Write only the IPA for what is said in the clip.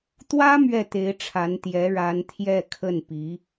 t̪ w ä˥ m ɥ ɛ˥˩ t̪ e˧˥ ɪ̯ ʈ͡ʂʰ a˧˥ n t̪ j ɛ˧˥ ɻ a˧˥ n t̪ʰ j ɛ˥˧ kʰ ə˥˩ n p i˧˥

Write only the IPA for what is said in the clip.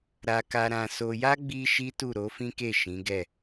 ɾ a˧ k a˧ ɾ ã˧ s o˧ j a˦ ɡ͡b i˦ ʃ i˦ t u˦˨ ɾ o˨˦ f ĩ˦ k e˦˨ ʃ ĩ˨˦ ɡ ɛ˦˨

